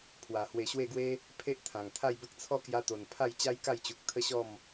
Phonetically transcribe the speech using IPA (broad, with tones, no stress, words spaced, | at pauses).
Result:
pʰwa˨˩hwe˧ɕwe˥˧ɡwe˦ | pʰe˦ʔt̪ʰã˨˩ŋt̪ʰa˥˧jbə˦k̚ t͡sʰɔ˦kja˧t̪o˨˩n pʰa˥˧j t͡ɕa˦jka˥˧jt͡ɕu˨k̚ t̪ʰə˦ɕɔ˥˧m